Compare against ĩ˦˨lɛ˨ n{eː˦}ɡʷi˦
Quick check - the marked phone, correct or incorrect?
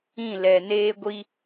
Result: correct